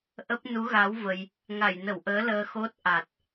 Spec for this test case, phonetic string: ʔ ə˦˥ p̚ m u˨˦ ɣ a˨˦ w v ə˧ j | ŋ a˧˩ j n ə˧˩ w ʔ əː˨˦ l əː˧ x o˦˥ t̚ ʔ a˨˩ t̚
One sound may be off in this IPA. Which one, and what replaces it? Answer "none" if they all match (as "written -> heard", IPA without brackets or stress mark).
m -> n